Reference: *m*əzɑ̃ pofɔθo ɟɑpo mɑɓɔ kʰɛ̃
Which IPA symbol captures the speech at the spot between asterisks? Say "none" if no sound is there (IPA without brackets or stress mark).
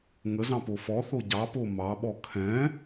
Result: ŋ